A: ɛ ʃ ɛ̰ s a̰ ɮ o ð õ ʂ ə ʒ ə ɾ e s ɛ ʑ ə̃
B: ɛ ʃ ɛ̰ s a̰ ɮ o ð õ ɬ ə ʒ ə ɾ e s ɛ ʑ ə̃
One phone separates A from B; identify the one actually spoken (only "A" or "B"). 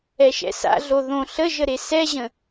B